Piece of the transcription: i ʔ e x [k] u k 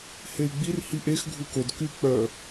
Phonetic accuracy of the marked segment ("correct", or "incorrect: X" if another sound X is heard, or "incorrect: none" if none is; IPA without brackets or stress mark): incorrect: ɡʱ